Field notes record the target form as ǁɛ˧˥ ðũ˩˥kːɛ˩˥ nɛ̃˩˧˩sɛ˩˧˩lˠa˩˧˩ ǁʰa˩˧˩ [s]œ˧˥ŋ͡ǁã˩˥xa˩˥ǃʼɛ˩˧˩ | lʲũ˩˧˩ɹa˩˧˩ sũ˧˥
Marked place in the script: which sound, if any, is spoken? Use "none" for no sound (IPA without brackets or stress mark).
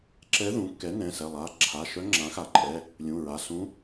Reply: ʃ